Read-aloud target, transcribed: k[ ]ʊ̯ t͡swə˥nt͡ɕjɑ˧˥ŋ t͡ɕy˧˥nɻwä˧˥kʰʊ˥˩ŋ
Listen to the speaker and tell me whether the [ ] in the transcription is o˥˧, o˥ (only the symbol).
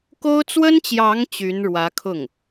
o˥